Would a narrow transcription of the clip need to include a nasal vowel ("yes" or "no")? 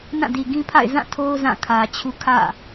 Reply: yes